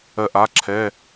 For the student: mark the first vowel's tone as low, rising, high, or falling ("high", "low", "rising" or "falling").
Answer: falling